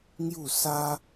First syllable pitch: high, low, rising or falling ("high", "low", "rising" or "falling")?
falling